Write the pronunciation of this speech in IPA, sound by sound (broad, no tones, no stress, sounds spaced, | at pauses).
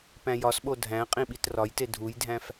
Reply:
p æ̃ j ɒ s ɓ o dʱ æ̃ qʼ ĩ ɓ i t r ɒ j t e dʱ u j dʱ æ̃ f